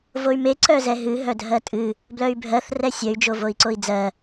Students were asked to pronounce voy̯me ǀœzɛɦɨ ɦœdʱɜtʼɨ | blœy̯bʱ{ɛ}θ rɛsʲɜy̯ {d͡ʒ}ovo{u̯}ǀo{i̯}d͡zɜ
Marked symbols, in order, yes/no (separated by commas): no, yes, no, yes